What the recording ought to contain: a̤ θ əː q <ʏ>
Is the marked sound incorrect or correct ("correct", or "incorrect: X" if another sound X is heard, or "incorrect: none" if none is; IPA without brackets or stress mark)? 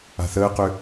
correct